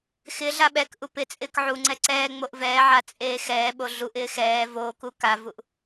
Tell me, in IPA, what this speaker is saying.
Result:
x ɪ ɮ a ɓ ɛ k ʔ u p ɪ t͡sʼ ɪː k ʕ u ŋ͡ǀ ɛ ǀ ɛː ŋ͡m o ʔ v ɛː ʕ a t͡sʼ eː x ɛː ɓ o ɮ u ʔ ɪː x ɛː v oː k u k a v u ʔ

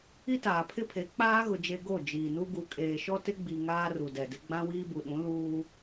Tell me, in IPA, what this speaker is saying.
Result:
i˦ t aː˨ pʰ ɪ˦ pʰ e˨˦ k͡p aː˦ ɣ ʊ˨ d͡ʒ e˨ ɡ o˦˨ d͡ʒ iː˨ n u˦ ɡ u˨ kʼ eː˨ ʃ ɔ˦ t ɪ˦ ɡ͡b i˨ ŋ aː˦ r u˨ d ɛ˨ d ɪ˦ ɡ͡b ã˦ w iː˦ b u˨ ɗ ũ˨˦ l uː˦

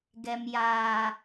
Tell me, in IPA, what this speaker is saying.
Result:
ɡ ɛ˨ m j aː˨

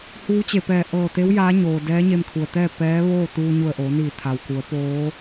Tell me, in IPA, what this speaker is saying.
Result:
h uː˧˥ t͡ɕ e˧˩ p ɛː˧˩ ʔ ɤː˧˩ t̪ e˧˥ w j aː˧˥ ɲ oː˩ d ɛː˧˥ ɲ e˧ m kʰ u˩ ə̯ t̪ ɛː˥˨ p ɛː˧˥ ʋ oː˥˨ t̪ uː˧ ɲ u˧˩ ə̯ ʔ oː˩˧ n iː˧˩ t̪ʰ a˩ w k u˩˧ ə̯ p oː˧˥

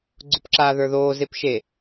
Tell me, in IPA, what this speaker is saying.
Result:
ɡ͡ǀ ʊ p ǁ aː ð ə˞ ð oː z e p ʃ e

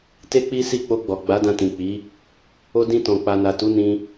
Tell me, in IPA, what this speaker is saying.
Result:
t e˦ k͡p i˦ s i˦˨ k͡p o˧ ɡ͡b ɔ˨ ɡ͡b a˨˦ d ã˧ t ĩ˨ k͡p i˨˦ | o˧ d ĩ˧ t ɔ̃˨ k͡p a˨ n a˨ t u˨˦ n ĩ˦

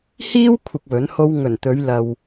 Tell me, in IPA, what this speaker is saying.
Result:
h iː˥ w kʷʰ ɪ˧ k̚ w ɵ˨˥ n h o˥ w ŋ ɵ˨˩ n t̪ ɵ˨˧ ɥ l ɐ˨ w

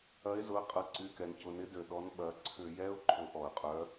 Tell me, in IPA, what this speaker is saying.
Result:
ɐ˨˦ ɪ̯ z ʊ˩˧˩ ə̯ qʼ ɐ˨˦ ǀ y˩˧˩ k ɛ˩ n c ʊ˩˧˩ n ɪ˨˦ d ø˩ ɗ ɔ˨˦ n ɓ ɐ˩˧˩ ǀʰ ʏ˧˩˧ j ɛ˧˥˧ ʊ̯ ǃʰ ʊ˨˦ ʔ ɔ˩ ə̯ qʼ œ˨˦

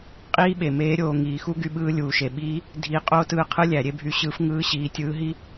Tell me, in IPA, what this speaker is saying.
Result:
qʼ iː˥ ɓ e˩ m eː˧˥ ɾʲ oː˩˧ ŋ iː˩˧ x u˥ ɡ y˧ ɓ ɯː˧˥ lʲ uː˩ ʃ e˩ ɓ iː˧˥ | dʱ i˧˥ qʼ oː˥ t ɯː˧ qʰ ɯ˥ lʲ æ˩˧ ɾʲ e˥ bʱ y˧ ɕ ɯː˧˥ f ŋ ɯː˧˥ ɕ iː˩˧ tʲ ɯː˧˥ ɦ i˥

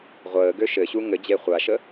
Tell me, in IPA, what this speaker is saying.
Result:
ʁʷ əː ɡ ø ʃ ɘ ɕ u ŋ ɘ d͡ʑ e χʷ a ʃ ə

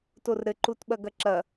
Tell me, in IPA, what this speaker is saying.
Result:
t o r ɾ ɘ ǃ u t ɓ ɐ ɡ ɐ ǁ ɐ

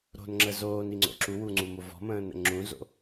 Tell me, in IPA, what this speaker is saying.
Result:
ɾ o̤ n ŋ͡ǁ ə z oː n i ŋ͡ǀ o̰ ǁ u w u ŋ͡ǀ u m o v ɔ̤ m ə̃ː n ə̰ ŋ͡ǁ ũ z o̰

